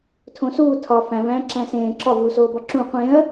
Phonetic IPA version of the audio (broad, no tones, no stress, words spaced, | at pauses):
tʰõsuː tʰɒ fæ̃væ̃ːǁæ̃ sẽː ǁɒvuːsoːbɒ ǁũ qʷẽɐ̯